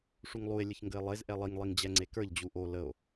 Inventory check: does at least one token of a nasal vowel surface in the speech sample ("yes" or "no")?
no